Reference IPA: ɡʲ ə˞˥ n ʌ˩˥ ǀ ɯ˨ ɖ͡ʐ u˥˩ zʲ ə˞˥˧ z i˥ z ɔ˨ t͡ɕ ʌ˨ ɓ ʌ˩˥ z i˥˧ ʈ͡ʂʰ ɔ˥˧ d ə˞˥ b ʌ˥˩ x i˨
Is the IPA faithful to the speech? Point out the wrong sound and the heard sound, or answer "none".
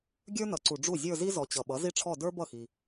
ɯ˨ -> u˨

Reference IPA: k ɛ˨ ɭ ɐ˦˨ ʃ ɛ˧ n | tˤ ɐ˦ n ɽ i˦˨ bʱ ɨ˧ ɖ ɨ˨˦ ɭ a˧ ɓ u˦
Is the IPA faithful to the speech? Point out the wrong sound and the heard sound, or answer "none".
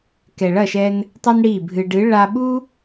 none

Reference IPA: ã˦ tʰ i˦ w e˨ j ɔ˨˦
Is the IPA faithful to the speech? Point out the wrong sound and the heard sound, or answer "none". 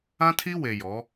none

